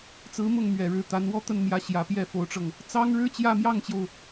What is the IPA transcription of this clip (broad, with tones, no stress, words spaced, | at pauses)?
t͡sɹ̩˧˥mʊ˥˩ŋ mɥɛ˨˩ɻɻ̩˧˥t̪a˧˥n wɔ˥˧t̪ə˥˩nmjä˧˥ɕjä˨˩ pjɛ˥˩fo˧˥ʊ̯ʈ͡ʂɤ˧ŋ | t͡sɑ˥ŋɻɻ̩˥ t͡ɕjä˥˧mjɑ˥˩ŋt͡ɕjo˩ʊ̯